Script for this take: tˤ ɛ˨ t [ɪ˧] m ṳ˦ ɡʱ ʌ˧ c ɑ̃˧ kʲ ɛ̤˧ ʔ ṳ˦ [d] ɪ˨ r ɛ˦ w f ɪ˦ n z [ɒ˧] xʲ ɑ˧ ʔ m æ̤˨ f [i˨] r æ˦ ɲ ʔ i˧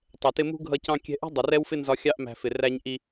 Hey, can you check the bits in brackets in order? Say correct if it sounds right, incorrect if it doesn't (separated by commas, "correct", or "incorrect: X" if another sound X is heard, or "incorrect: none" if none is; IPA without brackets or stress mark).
correct, incorrect: dˤ, correct, incorrect: ɪ˨